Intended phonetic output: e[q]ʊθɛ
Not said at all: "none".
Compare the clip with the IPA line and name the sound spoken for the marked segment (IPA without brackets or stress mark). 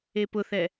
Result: p